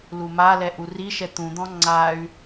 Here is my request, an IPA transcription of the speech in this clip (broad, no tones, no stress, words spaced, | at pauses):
lumalɛ ʔuriʃɛ t̪ũd̪ɔ̃ ŋ͡ǀay̯